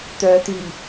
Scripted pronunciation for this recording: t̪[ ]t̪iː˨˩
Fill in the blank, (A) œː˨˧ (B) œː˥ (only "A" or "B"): A